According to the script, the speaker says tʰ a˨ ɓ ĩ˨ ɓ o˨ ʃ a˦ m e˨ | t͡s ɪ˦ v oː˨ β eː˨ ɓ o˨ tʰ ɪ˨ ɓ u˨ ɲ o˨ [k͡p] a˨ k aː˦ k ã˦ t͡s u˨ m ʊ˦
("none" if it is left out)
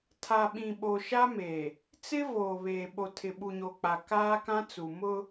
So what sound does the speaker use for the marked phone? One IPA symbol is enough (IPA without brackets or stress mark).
k͡p